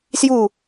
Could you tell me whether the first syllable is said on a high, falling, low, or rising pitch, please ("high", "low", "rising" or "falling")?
falling